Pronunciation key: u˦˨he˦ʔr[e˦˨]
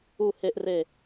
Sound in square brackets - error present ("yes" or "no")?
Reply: no